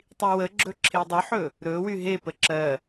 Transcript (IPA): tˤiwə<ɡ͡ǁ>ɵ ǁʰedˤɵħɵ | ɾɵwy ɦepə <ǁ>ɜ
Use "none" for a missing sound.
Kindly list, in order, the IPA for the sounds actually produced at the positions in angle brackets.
ɡ͡ǁ, ǁ

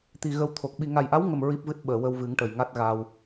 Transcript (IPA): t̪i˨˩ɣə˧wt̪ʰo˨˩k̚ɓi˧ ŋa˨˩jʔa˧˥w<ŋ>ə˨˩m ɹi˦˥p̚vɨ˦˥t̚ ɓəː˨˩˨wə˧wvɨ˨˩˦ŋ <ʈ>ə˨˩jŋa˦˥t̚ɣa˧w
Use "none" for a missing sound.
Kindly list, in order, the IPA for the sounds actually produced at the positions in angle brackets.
ŋ, ʈ

